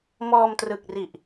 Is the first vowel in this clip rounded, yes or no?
yes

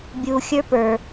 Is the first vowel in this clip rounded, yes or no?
yes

